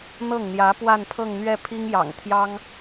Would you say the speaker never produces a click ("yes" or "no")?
yes